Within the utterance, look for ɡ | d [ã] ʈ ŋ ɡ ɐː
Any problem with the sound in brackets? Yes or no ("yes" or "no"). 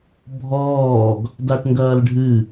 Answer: yes